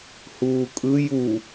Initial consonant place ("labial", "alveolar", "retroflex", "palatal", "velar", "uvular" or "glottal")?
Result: glottal